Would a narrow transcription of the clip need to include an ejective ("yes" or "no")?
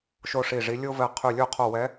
no